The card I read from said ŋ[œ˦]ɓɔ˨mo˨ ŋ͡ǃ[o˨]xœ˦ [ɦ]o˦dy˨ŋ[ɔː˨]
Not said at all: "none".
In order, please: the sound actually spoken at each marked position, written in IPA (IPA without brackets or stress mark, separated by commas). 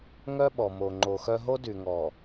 œ˦, o˨, ɦ, ɔː˨